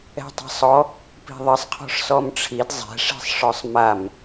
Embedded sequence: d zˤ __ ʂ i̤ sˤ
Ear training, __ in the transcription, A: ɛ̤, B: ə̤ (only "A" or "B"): A